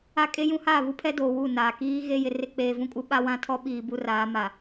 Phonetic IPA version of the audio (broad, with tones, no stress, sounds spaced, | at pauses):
a˦ kʼ e˦ j ũ˦ h aː˦˨ β u˦ pʰ ɛ˦ d oː˨ w u˦˨ n aː˨ k iː˦ ɣ e˦ j ɪ˨ r ɪ˦ k͡p eː˨ v ũ˦ kʼ u˦ ɓ a˦ w ã˦ tʰ ɔ˦ ɓ iː˨ b u˦ r aː˨˦ m a˨